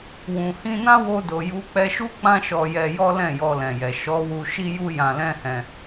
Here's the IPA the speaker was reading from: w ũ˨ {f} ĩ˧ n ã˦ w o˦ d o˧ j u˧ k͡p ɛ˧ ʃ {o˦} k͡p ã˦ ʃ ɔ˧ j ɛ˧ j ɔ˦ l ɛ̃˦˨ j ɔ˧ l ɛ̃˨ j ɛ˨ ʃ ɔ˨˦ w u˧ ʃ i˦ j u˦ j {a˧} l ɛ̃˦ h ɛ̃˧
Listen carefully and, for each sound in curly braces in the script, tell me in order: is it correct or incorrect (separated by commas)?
incorrect, incorrect, incorrect